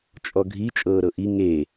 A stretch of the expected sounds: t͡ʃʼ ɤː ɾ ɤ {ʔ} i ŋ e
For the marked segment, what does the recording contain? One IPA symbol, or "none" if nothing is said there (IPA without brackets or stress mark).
ʔ